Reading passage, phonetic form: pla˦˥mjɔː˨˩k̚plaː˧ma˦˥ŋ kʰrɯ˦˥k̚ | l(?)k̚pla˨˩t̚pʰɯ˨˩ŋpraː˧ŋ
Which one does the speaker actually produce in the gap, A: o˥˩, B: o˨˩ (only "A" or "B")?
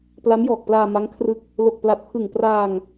B